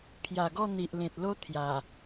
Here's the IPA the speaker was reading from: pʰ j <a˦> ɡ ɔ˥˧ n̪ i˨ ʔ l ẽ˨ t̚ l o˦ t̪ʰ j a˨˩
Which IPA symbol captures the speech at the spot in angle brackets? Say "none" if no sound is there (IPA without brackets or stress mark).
a˨˩